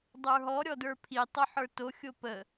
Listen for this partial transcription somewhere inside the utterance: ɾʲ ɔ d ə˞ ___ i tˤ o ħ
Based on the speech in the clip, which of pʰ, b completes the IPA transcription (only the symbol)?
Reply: pʰ